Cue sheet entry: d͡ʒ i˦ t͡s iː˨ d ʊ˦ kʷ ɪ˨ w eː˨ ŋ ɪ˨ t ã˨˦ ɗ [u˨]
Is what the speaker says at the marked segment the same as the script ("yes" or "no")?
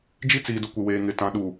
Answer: yes